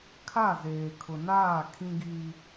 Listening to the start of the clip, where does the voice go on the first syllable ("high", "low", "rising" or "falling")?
falling